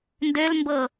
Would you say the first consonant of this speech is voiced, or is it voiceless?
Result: voiced